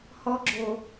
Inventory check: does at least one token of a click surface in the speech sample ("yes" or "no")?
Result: yes